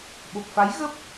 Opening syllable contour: low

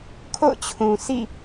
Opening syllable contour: falling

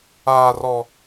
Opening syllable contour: high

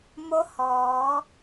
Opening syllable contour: rising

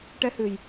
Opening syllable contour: rising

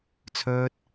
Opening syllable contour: high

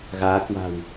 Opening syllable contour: rising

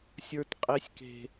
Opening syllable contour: high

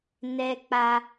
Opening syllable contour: high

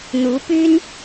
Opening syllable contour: rising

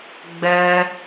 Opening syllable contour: high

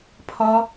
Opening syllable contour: high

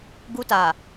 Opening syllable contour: high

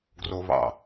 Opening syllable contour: high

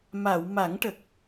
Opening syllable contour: low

